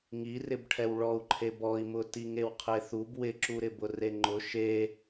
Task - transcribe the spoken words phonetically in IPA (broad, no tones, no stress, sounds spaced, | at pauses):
ŋ i r ɪ b ʈʰ ɛ w ɭ ɔ u̯ ǃʰ e b ɔ i̯ m ʊ t i ŋ e w qʰ e θ u b w ɪ ǁ u ɾ ɪ b ʊ r e ŋ͡ǃ ʊ ʃ e